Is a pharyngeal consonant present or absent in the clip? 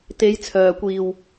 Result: absent